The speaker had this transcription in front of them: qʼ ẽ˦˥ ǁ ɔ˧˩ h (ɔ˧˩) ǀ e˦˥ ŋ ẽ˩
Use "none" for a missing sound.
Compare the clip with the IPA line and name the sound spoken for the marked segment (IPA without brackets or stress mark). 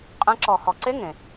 ɔ˧˩